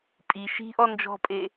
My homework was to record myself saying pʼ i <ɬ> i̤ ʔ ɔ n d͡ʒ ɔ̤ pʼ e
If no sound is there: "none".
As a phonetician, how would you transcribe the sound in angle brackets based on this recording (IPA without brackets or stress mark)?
ʃ